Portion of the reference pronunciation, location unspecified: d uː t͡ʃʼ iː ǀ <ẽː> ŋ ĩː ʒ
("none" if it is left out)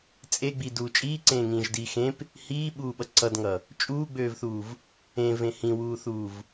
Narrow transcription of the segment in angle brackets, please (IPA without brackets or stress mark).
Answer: ẽː